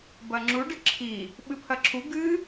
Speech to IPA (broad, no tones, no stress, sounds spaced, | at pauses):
b ɐ ŋ͡ǁ u ɖ ɨ ǁʰ i | ɓ ɨ pʰ ɐ ǁʰ u ɡ ɨ